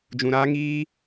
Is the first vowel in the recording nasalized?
yes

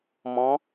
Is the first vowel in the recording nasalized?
yes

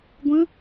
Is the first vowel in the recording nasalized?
yes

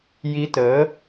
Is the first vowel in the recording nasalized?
no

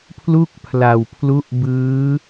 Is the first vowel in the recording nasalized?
no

